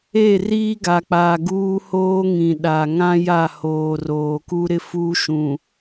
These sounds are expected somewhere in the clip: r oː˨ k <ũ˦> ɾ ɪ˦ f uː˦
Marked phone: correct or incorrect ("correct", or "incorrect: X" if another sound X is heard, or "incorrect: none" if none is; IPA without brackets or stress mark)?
incorrect: u˦